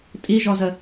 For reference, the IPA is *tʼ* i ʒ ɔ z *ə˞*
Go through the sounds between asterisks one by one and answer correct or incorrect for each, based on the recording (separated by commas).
correct, incorrect